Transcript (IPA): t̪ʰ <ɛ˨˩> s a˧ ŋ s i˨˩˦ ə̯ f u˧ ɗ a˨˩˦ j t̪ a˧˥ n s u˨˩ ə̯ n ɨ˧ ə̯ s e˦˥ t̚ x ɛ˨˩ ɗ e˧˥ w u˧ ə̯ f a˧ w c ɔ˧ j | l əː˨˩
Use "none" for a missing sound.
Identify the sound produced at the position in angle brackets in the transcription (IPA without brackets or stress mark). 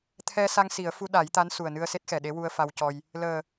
ɛ˧